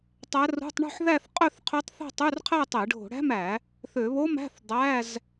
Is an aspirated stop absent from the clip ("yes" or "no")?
no